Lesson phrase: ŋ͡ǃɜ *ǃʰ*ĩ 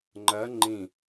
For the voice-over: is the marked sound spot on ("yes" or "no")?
no